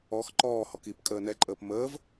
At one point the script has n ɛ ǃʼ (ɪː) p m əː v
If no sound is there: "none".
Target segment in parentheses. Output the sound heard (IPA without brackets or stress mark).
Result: əː